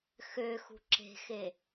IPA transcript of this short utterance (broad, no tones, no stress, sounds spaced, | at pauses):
x ø x ṳ ǁ e̤ x e